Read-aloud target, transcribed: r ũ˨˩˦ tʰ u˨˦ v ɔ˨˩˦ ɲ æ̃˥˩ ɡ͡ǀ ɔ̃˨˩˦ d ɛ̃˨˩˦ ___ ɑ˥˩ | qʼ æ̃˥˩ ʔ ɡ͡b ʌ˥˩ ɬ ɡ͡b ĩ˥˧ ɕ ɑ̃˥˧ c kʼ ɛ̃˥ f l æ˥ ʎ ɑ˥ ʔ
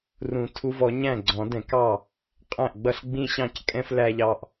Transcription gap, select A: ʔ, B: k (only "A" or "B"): B